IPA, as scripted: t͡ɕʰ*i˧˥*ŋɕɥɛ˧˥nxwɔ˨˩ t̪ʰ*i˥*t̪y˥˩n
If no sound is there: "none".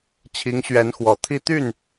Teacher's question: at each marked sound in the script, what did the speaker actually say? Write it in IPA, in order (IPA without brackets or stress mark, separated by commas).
i˧˥, i˥˧